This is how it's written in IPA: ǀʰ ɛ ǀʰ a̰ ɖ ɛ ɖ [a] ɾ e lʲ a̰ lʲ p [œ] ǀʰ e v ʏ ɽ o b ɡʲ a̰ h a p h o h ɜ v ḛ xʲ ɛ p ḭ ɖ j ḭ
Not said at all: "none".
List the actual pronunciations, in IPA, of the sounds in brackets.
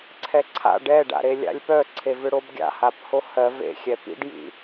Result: a̰, œ

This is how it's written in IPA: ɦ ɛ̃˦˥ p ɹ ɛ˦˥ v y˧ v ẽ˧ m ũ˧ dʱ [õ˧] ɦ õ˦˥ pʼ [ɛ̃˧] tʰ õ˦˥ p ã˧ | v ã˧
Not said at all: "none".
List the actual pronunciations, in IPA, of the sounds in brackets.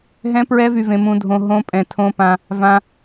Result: õ˧, ɛ̃˧

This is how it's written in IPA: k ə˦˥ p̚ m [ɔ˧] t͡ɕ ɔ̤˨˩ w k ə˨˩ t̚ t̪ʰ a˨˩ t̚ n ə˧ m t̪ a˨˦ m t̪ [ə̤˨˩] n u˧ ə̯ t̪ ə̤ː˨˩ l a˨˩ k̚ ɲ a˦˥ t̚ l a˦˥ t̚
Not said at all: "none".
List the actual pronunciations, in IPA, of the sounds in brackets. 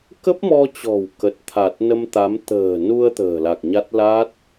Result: ɔ˧, ə̤ː˨˩

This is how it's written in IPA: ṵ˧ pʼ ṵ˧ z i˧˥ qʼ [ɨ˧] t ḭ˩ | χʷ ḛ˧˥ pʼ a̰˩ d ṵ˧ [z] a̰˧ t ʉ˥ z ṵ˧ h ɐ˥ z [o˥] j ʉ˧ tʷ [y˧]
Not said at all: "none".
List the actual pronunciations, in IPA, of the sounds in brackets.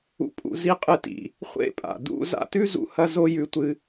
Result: ɨ˧, z, o˥, ɨ˧

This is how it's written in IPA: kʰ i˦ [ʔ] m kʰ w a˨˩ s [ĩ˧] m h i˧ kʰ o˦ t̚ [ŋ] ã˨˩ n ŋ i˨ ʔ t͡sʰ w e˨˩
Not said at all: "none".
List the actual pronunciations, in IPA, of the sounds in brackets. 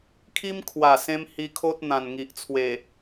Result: none, ẽ˧, n̪

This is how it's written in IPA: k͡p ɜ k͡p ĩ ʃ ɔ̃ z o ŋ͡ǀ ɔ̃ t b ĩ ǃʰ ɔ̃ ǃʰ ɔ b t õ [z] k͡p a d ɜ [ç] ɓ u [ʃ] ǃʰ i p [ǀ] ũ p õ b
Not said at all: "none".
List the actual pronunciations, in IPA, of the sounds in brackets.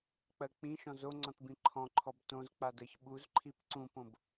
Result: z, ç, z, ǀ

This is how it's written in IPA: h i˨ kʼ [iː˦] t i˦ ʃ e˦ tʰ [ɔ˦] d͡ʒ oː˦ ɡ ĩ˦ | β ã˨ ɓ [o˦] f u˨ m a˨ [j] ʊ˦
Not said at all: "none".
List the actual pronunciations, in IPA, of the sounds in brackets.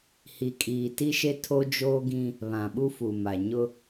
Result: iː˨, o˦, u˦, ɲ

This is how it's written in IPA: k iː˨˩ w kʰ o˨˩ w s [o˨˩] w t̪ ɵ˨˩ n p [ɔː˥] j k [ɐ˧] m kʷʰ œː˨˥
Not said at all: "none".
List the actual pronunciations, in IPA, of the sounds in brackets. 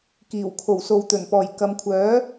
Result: o˨, ɔː˨˩, ɐ˨˧

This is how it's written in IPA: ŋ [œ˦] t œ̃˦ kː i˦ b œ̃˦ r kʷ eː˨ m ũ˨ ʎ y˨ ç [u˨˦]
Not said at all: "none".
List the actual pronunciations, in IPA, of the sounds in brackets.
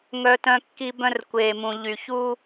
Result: œ˦, u˦

